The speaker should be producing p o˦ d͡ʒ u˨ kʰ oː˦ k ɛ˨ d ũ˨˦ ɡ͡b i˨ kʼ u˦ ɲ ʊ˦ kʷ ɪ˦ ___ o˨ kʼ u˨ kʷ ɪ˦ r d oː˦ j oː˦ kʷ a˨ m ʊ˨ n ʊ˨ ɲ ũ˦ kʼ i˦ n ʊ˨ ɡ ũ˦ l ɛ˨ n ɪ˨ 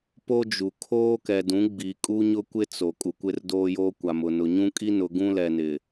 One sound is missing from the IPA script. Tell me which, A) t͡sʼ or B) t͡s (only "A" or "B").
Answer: B